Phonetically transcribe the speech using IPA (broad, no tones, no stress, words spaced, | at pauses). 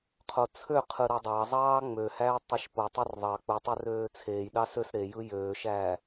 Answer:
qʰot͡sʰøqʰɯ ɾɑdˤɑzˤɑː ŋ͡møhæː tˤeʃpotˤer ðˤɑ k͡putˤø røːt͡sʰeːjɗɑ søs ɾejɯ jøːʃæː